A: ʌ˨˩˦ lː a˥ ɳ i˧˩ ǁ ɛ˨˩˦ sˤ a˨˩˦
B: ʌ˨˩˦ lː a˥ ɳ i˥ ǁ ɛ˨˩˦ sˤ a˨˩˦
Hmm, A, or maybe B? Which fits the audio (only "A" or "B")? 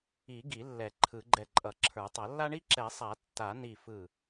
B